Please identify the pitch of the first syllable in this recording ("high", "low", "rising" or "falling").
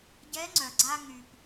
rising